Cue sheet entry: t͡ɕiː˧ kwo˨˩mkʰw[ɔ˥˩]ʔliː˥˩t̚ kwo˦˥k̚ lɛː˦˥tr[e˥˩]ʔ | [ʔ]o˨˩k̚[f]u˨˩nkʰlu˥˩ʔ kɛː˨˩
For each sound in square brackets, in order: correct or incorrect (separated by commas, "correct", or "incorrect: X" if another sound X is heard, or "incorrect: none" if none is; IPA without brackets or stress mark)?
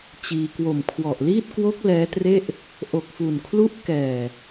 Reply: incorrect: ɔ˨˩, correct, correct, correct